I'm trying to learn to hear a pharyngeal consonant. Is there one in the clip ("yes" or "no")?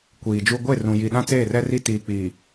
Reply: no